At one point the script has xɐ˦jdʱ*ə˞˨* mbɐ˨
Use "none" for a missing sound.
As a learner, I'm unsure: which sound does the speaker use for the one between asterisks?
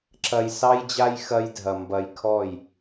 ɐ˨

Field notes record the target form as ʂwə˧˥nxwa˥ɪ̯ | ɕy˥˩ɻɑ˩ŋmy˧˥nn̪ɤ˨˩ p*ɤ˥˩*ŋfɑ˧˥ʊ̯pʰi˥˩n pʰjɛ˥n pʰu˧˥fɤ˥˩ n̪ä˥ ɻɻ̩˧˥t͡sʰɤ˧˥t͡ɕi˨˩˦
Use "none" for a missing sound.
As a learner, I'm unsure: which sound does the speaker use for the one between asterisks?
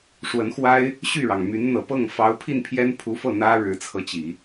ɤ˥˩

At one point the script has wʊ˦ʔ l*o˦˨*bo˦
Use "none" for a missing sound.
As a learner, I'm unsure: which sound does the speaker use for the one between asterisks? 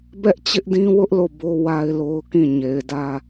o˦˨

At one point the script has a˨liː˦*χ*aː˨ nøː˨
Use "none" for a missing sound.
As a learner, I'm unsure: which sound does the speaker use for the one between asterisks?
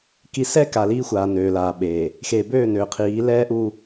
xʷ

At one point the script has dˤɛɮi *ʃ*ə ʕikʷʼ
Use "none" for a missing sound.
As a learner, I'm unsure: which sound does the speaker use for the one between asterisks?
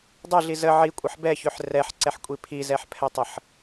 z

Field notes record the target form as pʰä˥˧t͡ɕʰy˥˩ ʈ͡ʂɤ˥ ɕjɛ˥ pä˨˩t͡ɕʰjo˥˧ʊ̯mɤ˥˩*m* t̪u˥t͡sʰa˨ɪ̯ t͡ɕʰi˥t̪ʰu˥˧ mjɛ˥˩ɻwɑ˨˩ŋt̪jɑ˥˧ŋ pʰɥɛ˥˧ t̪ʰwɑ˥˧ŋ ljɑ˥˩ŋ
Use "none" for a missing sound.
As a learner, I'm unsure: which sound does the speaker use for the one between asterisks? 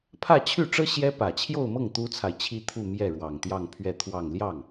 ŋ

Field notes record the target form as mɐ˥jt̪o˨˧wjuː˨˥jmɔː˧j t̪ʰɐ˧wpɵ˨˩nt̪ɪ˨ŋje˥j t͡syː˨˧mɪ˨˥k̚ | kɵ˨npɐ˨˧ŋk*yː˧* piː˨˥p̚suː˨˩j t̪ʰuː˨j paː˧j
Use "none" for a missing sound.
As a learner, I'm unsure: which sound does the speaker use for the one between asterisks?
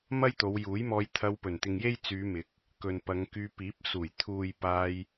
yː˧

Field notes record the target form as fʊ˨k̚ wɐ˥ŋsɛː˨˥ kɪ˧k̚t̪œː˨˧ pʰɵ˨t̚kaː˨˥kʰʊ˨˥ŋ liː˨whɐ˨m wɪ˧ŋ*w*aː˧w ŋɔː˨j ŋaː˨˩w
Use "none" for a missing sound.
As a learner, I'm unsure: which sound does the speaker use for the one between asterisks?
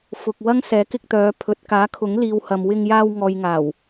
j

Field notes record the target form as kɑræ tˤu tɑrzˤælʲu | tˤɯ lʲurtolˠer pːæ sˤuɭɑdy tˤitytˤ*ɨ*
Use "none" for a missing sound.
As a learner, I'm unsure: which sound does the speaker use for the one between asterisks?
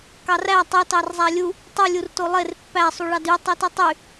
y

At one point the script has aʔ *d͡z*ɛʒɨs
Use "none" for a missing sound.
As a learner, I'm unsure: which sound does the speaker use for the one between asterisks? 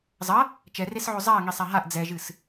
d͡z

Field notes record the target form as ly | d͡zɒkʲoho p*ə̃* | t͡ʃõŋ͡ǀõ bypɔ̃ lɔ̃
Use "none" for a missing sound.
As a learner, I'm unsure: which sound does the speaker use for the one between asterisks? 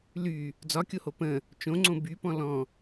ə̃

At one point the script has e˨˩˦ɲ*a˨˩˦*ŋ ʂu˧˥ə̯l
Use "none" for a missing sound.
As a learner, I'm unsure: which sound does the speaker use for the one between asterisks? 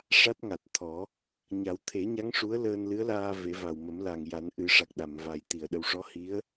a˧˥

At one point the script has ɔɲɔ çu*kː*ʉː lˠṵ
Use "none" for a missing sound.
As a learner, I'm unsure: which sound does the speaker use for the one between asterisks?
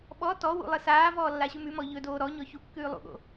kː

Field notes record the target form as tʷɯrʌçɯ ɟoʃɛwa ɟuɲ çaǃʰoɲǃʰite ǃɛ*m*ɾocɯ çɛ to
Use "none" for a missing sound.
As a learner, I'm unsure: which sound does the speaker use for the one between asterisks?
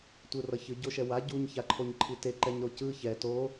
ɲ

